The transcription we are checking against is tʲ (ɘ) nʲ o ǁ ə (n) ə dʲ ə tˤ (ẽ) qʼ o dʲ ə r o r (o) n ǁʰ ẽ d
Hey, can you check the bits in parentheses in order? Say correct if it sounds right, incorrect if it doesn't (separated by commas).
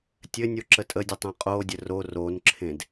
correct, incorrect, correct, correct